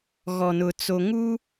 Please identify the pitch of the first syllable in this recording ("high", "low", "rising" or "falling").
low